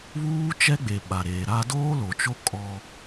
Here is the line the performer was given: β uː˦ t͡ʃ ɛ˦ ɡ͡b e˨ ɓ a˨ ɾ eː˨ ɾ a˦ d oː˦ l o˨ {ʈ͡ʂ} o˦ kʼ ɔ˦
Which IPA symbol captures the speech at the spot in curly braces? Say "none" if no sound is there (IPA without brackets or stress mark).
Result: t͡ʃ